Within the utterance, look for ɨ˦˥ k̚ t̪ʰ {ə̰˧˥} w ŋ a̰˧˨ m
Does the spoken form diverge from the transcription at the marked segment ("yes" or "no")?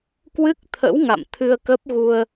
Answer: no